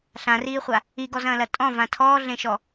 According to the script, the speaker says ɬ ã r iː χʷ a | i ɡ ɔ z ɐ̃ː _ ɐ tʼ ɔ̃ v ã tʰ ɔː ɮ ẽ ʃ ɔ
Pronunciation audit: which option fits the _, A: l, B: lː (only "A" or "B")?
A